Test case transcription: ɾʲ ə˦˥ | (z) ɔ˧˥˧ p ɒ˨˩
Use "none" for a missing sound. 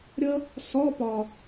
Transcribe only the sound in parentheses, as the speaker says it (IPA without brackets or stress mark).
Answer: s